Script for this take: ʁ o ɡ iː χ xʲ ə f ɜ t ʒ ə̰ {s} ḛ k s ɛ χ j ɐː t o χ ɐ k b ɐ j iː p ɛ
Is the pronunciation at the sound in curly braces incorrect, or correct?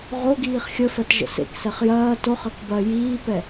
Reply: correct